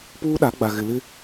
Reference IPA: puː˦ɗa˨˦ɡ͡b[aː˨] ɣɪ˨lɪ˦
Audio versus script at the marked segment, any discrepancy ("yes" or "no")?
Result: yes